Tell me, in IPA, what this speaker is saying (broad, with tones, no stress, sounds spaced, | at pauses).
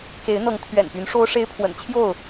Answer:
k e˨˦ ɪ̯ n̪ ɤ˨˦ ŋ t̪ʰ ɥ ɛ̰˨˩ n p y˨˦ n ʂ o˦ ʊ̯ ʂ e˦ ɪ̯ pʰ w ə̰˨˩ n t͡ɕʰ j o˥˨ ʊ̯